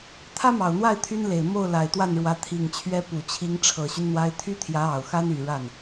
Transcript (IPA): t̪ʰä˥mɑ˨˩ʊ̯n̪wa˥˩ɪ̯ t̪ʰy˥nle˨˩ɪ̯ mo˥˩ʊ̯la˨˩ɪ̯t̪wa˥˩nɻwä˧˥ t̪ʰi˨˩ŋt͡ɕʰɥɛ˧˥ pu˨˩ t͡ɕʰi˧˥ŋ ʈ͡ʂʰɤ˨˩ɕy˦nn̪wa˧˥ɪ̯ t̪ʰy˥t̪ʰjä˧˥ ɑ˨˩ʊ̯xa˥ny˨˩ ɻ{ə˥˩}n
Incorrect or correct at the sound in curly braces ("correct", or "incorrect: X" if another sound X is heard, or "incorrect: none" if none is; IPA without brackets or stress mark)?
incorrect: a˥˩